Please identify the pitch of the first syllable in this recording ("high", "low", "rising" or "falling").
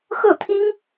falling